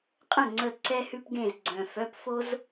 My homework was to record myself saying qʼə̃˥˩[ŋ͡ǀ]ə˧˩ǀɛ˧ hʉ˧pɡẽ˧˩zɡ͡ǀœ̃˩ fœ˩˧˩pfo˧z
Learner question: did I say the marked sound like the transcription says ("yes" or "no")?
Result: yes